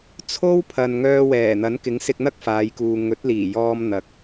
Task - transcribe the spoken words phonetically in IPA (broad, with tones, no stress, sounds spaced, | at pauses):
t͡sʰ o˥ w pʰ ɐ˨ n ŋ œː˧ w ɛː˨˩ n̪ ɐ˨˥ n k ɪ˨˥ ŋ s ɪ˧ k̚ n̪ ɐ˥ k̚ f aː˨˧ j k uː˨ ŋ ɵ˨˥ t̚ l iː˨˩ j ɔː˧ m n̪ ɐ˨ k̚